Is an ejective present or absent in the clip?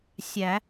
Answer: absent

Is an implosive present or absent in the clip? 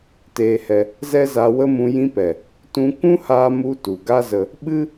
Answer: present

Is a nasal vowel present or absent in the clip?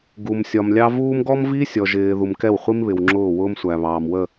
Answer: absent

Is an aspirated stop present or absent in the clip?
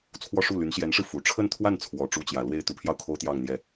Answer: present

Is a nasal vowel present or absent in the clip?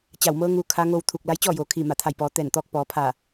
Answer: absent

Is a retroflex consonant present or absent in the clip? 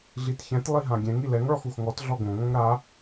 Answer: present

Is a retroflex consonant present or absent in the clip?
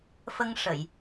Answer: present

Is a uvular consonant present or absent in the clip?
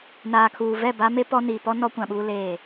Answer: absent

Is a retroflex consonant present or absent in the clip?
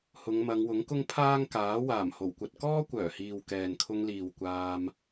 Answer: absent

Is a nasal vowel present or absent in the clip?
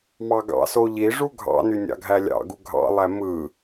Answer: absent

